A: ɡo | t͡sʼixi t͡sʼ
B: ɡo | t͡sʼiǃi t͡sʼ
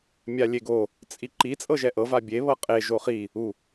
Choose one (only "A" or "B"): B